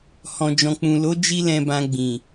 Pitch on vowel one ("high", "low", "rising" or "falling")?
low